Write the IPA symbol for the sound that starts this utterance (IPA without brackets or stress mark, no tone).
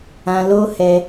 ã